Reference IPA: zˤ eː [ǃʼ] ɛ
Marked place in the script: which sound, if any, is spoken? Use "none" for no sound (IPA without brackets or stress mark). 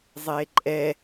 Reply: ǃʼ